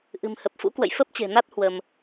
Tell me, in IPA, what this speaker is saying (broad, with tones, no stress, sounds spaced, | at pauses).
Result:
ʔ ɨ̤˨˩ m h ə˨˩ p̚ f ṵ˧˥ k w ə̰˧˨ j f ə˦˥ p̚ t͡ɕ e̤˨˩ n a˦˥ t̚ h w ə˧ m